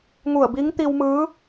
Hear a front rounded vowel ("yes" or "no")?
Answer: no